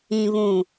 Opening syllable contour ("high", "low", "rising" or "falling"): low